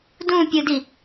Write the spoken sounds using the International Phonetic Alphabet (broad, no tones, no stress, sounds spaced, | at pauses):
d ũ pʲ ɯ d i